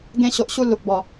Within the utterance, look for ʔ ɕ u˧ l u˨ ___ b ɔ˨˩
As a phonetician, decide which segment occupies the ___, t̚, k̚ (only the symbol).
k̚